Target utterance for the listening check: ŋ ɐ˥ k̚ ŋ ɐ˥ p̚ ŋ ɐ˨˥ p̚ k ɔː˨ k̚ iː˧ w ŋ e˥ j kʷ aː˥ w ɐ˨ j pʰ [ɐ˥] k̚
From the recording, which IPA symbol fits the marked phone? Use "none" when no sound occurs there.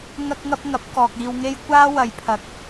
ɐ˨˥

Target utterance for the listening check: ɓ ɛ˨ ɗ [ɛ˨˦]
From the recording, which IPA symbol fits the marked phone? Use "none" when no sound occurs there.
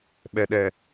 ɛ˨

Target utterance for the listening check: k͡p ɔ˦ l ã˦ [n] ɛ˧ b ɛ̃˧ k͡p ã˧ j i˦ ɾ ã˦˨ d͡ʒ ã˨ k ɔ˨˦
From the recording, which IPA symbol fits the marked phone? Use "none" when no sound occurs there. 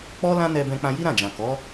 n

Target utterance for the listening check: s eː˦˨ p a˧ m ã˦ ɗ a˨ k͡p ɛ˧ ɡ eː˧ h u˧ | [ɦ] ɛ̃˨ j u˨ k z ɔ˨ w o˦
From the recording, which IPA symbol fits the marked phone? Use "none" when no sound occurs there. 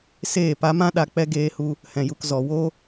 h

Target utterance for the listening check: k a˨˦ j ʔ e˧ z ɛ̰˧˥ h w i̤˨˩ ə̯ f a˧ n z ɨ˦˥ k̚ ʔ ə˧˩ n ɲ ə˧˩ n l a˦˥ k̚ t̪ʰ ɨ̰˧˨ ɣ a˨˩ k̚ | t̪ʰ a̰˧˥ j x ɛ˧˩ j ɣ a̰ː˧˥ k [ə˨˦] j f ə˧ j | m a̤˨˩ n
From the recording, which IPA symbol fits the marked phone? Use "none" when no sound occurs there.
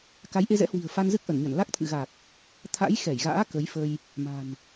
ə˨˦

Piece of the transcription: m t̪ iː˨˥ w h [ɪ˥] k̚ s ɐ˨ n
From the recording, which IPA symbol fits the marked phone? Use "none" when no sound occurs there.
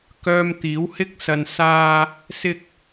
ɪ˥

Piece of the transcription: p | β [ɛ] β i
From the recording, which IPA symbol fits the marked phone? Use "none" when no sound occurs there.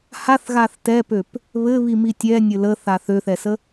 ɘ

